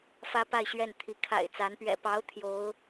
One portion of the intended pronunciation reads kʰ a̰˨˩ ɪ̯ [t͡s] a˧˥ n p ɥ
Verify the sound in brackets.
correct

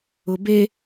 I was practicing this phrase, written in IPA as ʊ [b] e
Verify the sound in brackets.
correct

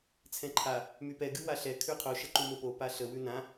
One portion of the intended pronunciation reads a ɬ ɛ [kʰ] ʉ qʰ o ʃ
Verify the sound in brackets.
correct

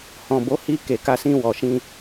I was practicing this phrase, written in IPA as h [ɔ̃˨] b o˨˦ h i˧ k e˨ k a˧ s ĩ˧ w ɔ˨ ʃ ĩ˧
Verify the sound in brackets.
correct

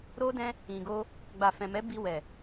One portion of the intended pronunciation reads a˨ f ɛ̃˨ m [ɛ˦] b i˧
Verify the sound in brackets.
incorrect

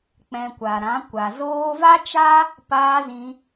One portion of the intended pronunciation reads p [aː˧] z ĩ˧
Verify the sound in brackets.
correct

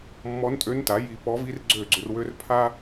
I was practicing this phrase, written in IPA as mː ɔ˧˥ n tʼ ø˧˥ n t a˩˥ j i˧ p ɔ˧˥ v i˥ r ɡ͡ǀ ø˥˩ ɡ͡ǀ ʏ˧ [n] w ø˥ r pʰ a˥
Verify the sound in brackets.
incorrect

